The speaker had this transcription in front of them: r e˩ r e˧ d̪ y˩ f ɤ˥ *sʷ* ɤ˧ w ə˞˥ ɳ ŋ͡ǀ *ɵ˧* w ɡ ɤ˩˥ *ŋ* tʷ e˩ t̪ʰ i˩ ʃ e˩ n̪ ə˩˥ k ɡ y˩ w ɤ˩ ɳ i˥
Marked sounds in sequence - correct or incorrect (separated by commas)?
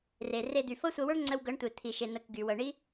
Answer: correct, incorrect, incorrect